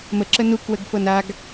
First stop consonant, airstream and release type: click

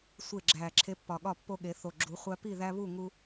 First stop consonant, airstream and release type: click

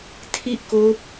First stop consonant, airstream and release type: aspirated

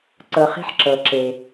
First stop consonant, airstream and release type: click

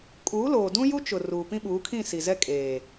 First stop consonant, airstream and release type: ejective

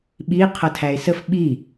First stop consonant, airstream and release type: implosive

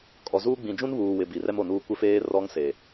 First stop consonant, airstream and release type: ejective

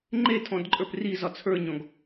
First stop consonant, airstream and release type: click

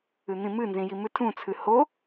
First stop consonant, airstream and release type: aspirated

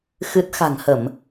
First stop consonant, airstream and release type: plain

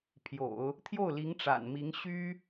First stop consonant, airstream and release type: aspirated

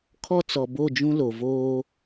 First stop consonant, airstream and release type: aspirated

